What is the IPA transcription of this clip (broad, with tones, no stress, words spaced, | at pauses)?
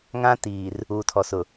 ŋã˦tiː˨r | uː˨tʰɔ˨sʊ˨